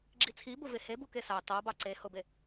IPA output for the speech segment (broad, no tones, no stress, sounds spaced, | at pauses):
ɡ͡ǁ i t͡sʰ i b ʊ v e h e b u k e s ɑ t ɑ b ɑ ǀ e h ʊ b e